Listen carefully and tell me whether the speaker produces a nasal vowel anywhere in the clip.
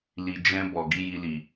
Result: yes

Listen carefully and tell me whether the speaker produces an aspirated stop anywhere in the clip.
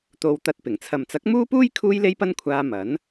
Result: yes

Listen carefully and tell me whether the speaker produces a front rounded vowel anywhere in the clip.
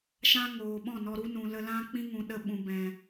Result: no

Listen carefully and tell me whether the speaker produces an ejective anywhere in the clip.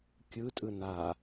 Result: yes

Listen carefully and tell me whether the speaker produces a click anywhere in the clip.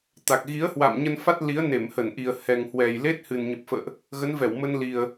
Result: no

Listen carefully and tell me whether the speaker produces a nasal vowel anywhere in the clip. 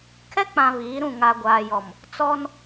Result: yes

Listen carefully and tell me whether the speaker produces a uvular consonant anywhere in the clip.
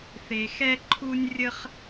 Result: yes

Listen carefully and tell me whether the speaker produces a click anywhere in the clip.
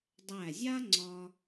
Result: yes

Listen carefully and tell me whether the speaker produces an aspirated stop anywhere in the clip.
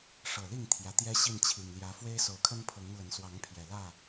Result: yes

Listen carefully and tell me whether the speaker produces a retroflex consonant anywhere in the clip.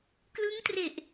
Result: no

